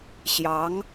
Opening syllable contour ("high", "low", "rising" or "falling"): rising